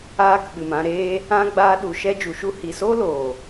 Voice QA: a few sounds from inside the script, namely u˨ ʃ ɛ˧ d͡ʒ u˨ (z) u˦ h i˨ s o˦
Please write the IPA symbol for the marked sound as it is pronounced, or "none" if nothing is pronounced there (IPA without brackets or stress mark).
ʃ